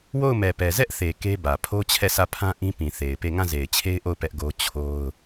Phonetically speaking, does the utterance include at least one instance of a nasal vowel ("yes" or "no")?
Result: yes